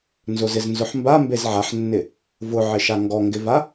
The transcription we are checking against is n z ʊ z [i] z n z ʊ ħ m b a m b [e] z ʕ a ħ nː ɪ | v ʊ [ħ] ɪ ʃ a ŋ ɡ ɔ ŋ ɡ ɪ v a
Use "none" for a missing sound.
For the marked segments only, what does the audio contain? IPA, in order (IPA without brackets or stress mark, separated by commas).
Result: ɪ, e, ʕ